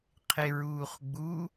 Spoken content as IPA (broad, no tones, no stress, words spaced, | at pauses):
qʰeɹuːχɡ͡bu